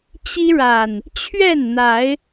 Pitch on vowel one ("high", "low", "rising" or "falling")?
high